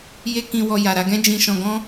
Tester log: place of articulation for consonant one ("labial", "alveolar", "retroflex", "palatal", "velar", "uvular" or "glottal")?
palatal